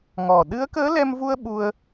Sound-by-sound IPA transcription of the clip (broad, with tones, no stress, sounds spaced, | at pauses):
ŋ ɔ˨˩ ɗ ɨ˧˥ ə̯ k əː˧˥ l ɛ˧ m v u˧ ə̯ ɓ u˧ ə̯